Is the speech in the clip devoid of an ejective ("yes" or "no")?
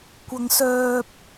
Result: yes